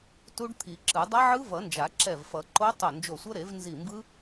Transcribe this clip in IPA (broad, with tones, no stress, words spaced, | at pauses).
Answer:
tu˦˥ɖt̪ʰi˨˩˦ǁɯ˨˩˦ dˤa˦˥ʕɯ˦˥vʌ˨˩˦nd͡ʒa˨˩˦ ǁɛ˧˩vfʌ˨˩˦ǃo˦˥ tˤo˧˩nd͡ʒo˧˩sʷʌ˦˥ ɾe˨˩˦vnzi˧˩mbɯ˦˥